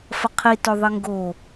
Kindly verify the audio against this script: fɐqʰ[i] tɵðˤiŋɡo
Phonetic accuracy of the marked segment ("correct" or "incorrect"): correct